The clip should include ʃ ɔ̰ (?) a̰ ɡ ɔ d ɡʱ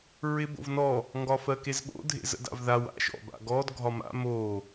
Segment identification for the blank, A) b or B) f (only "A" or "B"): A